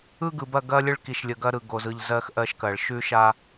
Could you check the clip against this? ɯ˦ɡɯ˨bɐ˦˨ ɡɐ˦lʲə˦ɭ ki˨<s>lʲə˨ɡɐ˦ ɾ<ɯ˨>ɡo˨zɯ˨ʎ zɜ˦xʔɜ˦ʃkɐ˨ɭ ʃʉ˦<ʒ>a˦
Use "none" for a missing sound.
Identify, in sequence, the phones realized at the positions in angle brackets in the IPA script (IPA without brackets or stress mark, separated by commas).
ʃ, ɯ˨, ʃ